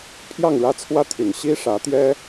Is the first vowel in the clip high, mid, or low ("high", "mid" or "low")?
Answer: low